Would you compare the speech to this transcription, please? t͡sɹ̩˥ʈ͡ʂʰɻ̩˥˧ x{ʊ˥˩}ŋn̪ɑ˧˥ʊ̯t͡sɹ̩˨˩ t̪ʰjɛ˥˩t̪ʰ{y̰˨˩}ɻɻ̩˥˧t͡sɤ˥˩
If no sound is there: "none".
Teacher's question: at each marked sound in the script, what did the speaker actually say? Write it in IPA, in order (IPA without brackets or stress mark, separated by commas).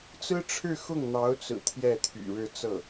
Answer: ʊ˥˩, y̰˨˩